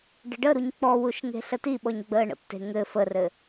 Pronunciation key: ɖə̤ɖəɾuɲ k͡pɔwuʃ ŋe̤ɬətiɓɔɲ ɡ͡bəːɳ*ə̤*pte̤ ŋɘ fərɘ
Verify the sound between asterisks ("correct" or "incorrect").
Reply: incorrect